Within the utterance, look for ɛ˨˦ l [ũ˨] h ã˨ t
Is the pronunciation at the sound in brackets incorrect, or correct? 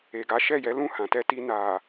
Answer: incorrect